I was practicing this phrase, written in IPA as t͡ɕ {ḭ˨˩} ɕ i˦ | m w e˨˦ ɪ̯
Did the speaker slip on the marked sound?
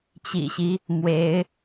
no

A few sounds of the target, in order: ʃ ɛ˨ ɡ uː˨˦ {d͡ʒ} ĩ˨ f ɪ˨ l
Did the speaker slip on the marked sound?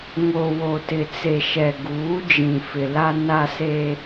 no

